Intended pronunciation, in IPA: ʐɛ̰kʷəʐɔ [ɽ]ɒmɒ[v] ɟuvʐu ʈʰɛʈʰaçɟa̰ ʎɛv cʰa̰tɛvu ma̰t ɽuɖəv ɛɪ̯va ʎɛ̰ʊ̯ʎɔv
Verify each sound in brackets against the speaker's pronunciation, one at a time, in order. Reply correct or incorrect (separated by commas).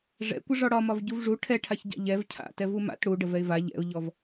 correct, correct